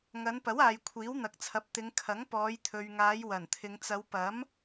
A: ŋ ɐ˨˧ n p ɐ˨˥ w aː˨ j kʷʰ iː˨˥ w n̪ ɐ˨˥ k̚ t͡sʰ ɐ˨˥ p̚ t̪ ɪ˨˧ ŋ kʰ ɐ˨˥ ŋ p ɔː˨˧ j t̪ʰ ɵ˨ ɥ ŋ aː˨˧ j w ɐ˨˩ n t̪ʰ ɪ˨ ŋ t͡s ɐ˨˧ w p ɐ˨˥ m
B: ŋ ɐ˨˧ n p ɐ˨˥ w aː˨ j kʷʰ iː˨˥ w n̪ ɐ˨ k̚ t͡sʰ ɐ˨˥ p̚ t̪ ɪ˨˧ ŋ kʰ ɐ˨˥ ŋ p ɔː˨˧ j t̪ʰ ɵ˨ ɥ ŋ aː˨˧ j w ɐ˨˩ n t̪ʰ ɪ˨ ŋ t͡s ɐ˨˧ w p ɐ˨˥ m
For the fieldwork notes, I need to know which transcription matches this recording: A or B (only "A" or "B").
B